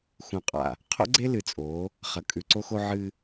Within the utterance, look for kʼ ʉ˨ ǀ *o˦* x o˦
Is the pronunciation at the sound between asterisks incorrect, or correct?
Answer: correct